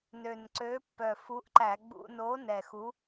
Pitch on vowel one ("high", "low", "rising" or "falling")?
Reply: low